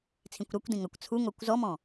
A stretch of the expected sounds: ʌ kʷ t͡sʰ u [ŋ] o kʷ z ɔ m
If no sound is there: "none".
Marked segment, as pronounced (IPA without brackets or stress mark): ŋ